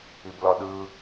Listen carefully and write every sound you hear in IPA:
i b l ɒ ɗ ɯ

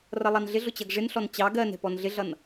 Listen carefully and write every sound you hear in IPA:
r ʌ lˠ ɑ n ɮ ɪ ɮ ʊ t͡ɕ ʌ ɡ ʐ ɪ n ɬ ɔ n t͡ɕ ɑ ɡ ɜ n ɛ̤ p ɔ n ɮ ɪ ɮ ʌ n

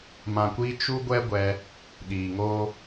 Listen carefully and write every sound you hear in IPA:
m ã˨ kʷ iː˧ t͡ʃ u˦ ɡʷ ɛ˦ ɡʷ ɛ˧ | ɗ iː˨ ŋ oː˦

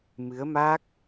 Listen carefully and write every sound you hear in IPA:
m ɨ˨˦ ə̯ m a˦˥ k̚

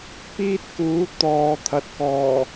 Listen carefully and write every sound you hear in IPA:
p iː˥ t̚ k uː˨˥ t̪ ɔː˨ t̪ʰ ɐ˨ t̚ k ɔː˨˩

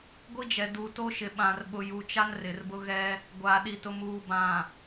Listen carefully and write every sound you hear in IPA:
ɡʷ i˦ d͡ʒ ɛ˨ d uː˨ t o˦ ʃ ɪ˨ ɓ ã˨ r ɓ ʊ˨ j u˨ t͡ʃ a˦ n r ɪ˨ r b ʊ˦ ɣ ɛ˦ | ɡʷ aː˨ ɗ i˨ t ʊ˨ m uː˨ b ã˨

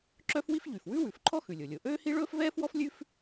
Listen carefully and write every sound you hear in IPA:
ǁ œ˥ f w i˥ f ʎ y˩ f w ʉ˥ w ʉ˩ f ǃʰ ɔ˥ x ʉ˩ lʲ o˩ lʲ o˩ ʔ øː˥ h i˥ ɭ ɵː˥ f v ɛː˥ f w ɔ˥ f lʲ ʉ˥ f

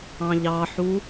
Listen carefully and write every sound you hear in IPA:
ɑ̃ ʎ ɑ ħ u

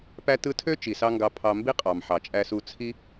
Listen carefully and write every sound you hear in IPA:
p æ˥ t ɯ˥ tʰ ø˥ t͡ʃ i˩ s ɑ˧ ŋ ɡ ɑ˧ pʰ ɑ˧ m b i˥ qʼ ɑ˩ m ħ ɑ˩ t͡ʃʼ æ˧ s u˧ t͡sʰ i˥

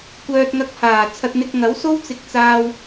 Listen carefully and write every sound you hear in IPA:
kʷ œː˧ t̚ ŋ ɐ˧ k̚ h aː˨˩ t͡sʰ ɐ˧ t̚ n̪ ɪ˧ k̚ ŋ ɐ˨˥ w s o˥ w t͡s ɪ˧ k̚ t͡s aː˧ w

